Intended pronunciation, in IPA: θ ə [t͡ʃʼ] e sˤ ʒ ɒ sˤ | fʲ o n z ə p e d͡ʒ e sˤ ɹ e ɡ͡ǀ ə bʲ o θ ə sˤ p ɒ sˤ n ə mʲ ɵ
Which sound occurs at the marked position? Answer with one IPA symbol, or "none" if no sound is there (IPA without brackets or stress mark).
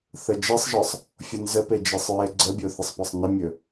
d͡ʒ